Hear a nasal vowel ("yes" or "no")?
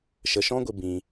yes